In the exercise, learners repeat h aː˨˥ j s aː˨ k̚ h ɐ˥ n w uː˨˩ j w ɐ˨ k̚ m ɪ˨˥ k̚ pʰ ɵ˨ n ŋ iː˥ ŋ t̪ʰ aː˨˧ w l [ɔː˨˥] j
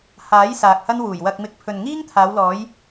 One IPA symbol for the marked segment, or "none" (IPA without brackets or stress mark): ɔː˨˥